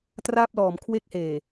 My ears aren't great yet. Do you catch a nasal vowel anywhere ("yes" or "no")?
no